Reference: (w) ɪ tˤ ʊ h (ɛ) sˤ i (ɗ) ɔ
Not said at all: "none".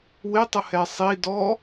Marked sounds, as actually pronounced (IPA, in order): w, ɛ, d

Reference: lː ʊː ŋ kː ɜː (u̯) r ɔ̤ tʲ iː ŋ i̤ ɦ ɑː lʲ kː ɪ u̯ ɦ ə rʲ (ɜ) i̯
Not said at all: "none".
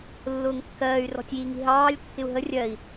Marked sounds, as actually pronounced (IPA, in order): y̯, ɜ

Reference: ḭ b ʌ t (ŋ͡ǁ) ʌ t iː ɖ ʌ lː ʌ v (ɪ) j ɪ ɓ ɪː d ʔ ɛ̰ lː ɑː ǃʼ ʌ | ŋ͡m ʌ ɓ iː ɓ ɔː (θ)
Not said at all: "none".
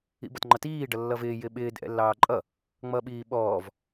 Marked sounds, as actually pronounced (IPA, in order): ŋ͡ǃ, ɪː, v

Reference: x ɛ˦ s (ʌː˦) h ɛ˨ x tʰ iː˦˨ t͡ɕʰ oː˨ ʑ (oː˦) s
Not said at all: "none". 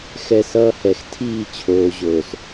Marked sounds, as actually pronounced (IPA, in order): ʌː˦, oː˨

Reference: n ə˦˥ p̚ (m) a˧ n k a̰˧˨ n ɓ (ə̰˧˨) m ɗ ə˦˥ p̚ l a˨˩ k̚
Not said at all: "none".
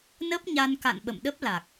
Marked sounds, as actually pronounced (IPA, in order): ɲ, ə̰˧˨

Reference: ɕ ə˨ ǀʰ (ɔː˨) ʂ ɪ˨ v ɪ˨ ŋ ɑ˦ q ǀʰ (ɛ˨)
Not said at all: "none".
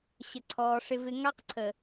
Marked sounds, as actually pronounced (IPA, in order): ɔː˨, ə˨

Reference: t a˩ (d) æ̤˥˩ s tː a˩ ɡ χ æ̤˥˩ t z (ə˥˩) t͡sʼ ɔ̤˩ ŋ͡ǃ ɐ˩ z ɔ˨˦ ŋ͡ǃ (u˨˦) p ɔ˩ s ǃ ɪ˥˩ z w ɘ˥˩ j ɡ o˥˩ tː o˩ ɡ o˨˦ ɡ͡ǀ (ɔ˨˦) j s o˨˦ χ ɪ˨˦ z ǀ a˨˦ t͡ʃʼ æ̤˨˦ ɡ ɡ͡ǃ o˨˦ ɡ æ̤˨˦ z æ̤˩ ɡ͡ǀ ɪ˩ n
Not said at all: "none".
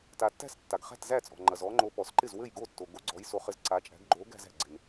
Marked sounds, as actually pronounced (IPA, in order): tː, æ˥˩, o˨˦, ɔ˨˦

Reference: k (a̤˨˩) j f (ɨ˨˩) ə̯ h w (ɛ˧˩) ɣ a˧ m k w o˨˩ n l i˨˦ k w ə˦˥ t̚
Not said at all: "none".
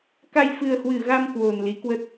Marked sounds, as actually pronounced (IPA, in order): a˧, ɨ˨˩, ɨ˧˩

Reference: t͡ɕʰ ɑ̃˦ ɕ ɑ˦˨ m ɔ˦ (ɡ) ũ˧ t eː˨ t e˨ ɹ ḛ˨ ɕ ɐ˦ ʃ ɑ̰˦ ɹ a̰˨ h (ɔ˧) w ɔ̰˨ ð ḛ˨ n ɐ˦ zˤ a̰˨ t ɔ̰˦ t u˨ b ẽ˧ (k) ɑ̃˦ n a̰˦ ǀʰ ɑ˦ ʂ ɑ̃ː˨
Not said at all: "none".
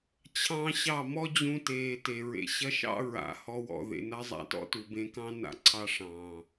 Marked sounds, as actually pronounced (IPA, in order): d͡ʑ, ɔ˧, k

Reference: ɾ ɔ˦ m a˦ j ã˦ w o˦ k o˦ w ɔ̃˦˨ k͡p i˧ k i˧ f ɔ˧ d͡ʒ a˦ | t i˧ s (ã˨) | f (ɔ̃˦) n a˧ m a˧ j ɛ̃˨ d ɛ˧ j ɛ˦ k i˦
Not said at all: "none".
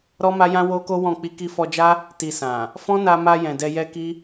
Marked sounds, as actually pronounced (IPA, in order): ã˨, ɔ̃˦

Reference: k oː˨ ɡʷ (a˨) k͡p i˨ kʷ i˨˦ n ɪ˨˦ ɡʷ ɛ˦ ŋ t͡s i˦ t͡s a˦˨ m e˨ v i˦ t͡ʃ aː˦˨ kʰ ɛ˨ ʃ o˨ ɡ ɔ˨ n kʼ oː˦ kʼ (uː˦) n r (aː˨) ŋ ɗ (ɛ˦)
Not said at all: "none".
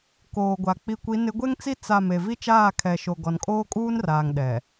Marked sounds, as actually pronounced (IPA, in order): a˨, uː˦, aː˨, ɛ˨

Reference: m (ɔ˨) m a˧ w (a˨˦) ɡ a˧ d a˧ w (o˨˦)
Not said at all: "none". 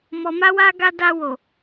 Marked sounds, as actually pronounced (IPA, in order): ɔ˨, a˧, o˨

